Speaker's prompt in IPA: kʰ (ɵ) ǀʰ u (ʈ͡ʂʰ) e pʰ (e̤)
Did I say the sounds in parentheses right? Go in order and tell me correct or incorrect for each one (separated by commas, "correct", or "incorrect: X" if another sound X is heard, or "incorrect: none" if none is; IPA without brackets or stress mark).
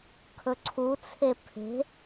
correct, incorrect: t͡sʰ, correct